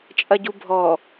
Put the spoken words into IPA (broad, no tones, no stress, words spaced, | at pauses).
t͡ʃʼɐɟubʱɔ